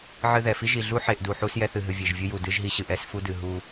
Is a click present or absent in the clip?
absent